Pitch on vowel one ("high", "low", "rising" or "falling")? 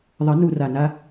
rising